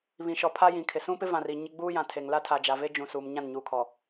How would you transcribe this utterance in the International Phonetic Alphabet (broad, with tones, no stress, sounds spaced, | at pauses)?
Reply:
β ĩ˨ ʃ ɔ˨ pʰ a˦ j ĩ˨ kʰ ɪ˨ s ũ˦ p ɪ˦ v ã˨ r i˦˨ ɲ ɪ˦ ɡ͡b uː˦ j ã˨ tʰ e˨ ŋ l a˦ tʰ a˨ d͡ʒ a˨ v e˦ d͡ʒ ũ˨ s uː˨ m ɲ ã˦˨ n ɲ uː˨ kʰ ɔ˨